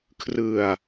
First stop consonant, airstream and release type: aspirated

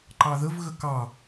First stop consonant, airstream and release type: click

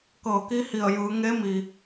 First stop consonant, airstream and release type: plain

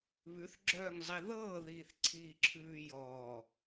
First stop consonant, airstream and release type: click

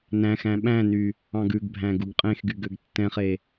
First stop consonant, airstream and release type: implosive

